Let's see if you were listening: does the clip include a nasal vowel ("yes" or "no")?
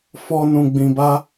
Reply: yes